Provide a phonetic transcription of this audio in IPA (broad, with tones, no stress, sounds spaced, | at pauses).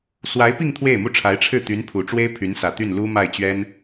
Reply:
s w a˧˥ ɪ̯ p i˥˧ ŋ t̪ʰ w e˥˩ ɪ̯ m u˥ ʈ͡ʂʰ a˧˥ ɪ̯ ʈ͡ʂʰ ɻ̩˥˩ t̪ y˧˥ n pʰ u˨˩ ʈ͡ʂ w e˥ ɪ̯ pʰ y˧˥ n s ä˨˩ t̪ y˥˩ n l u˥ m a˥˩ ɪ̯ t͡ɕ ɥ ɛ˥ n